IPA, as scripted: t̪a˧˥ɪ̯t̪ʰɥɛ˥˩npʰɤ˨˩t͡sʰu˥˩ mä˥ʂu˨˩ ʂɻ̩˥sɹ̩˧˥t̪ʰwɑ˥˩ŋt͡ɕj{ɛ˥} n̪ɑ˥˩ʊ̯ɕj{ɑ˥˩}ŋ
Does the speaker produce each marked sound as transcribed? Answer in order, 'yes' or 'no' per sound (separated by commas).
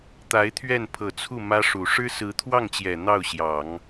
no, no